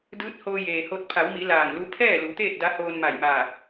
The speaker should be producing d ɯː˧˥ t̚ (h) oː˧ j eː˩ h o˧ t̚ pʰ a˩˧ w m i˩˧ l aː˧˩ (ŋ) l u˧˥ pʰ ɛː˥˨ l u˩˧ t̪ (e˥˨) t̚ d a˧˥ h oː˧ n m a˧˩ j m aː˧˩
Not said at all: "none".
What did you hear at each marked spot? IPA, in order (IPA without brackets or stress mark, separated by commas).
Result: h, ŋ, eː˥˨